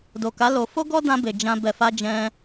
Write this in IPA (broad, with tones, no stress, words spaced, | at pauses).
do˨ka˨˦ lo˧ fo˦ɡɔ˦dã˧be˨ d͡ʒã˧ bɛ˨fa˧ d͡ʒɛ̃˧